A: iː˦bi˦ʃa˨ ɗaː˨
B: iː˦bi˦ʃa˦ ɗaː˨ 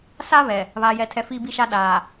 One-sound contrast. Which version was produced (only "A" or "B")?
B